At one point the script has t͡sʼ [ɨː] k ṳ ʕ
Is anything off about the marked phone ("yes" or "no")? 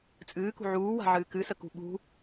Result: no